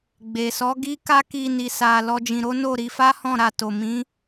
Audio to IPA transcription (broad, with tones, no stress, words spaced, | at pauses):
ɡ͡be˨ sɔ˨˦ɡi˦ka˦ki˧ ni˧sa˧lɔ˦d͡ʒĩ˧ ɾo˦no˦˨ ɾi˧fa˦hɔ̃˦˨ɾa˧ to˨mĩ˨˦